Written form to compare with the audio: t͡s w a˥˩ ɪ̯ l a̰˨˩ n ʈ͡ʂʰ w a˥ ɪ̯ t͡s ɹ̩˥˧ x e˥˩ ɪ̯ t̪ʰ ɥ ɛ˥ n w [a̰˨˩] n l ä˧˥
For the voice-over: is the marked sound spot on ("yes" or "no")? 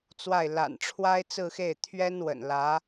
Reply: no